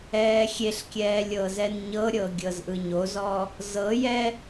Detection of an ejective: absent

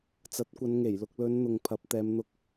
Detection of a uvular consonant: absent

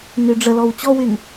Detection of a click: absent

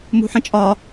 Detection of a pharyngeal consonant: present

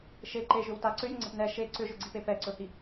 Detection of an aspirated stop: absent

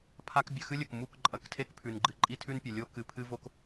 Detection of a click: present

